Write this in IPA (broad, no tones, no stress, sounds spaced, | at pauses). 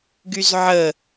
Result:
ɡ y z ʕ ə